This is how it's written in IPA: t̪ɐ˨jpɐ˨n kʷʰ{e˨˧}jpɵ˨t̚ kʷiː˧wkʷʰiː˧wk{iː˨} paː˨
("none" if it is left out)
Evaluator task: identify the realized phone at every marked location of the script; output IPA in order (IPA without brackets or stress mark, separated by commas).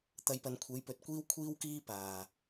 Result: e˨˧, iː˧